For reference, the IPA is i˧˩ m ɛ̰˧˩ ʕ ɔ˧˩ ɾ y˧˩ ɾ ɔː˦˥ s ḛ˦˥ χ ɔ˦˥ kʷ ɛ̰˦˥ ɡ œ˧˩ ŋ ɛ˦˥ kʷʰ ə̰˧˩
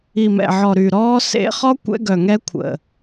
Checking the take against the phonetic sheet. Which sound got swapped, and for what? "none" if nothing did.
none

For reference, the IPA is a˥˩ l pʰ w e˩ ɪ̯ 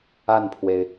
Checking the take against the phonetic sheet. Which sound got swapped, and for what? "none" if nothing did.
l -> n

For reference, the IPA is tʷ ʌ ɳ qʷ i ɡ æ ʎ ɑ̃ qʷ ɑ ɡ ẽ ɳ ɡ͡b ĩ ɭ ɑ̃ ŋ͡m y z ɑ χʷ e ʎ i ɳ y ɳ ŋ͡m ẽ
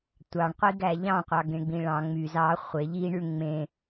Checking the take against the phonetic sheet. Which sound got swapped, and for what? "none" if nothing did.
ʌ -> ɑ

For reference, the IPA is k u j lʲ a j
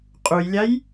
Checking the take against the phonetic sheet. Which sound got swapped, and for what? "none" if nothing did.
k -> qʼ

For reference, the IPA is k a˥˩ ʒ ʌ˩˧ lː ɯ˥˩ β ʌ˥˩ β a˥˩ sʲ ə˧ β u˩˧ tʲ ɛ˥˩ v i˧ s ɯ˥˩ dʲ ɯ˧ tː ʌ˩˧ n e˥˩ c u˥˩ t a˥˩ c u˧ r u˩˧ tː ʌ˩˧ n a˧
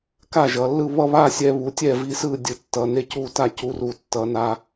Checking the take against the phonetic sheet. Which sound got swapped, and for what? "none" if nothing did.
ə˧ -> ɛ˧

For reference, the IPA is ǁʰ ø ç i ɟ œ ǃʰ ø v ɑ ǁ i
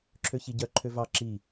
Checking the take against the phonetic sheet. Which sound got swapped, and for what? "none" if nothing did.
none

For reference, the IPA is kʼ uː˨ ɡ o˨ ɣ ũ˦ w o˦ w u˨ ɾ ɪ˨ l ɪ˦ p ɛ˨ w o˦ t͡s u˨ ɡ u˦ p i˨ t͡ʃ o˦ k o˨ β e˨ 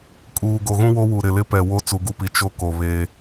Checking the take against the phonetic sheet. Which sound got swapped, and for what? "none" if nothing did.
e˨ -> e˦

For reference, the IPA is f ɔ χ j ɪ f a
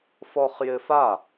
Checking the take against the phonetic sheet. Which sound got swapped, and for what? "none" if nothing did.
none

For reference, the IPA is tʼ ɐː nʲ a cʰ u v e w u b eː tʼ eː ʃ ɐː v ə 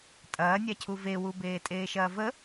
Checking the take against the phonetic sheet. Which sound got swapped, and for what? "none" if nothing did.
none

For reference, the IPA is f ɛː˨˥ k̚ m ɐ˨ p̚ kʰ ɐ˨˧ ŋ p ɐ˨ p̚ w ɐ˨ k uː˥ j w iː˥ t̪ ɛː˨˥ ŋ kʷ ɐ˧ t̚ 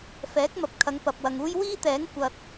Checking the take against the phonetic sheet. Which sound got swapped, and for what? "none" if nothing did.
k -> ŋ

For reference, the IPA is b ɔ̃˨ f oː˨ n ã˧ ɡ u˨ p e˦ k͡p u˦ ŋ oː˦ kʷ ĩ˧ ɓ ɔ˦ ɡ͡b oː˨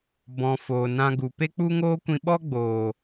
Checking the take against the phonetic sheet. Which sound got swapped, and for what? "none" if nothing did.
none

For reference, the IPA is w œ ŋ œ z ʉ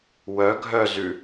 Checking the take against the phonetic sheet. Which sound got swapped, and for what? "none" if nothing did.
ŋ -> ɡʱ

